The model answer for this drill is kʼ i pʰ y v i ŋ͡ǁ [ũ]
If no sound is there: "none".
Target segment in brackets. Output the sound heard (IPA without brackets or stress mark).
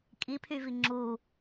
u